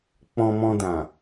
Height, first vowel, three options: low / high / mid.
mid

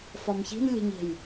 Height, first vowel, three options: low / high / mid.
low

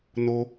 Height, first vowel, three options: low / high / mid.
mid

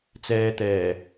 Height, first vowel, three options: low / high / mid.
mid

